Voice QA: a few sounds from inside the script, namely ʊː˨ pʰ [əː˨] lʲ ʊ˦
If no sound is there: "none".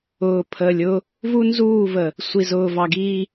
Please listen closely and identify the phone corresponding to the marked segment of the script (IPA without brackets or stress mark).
əː˨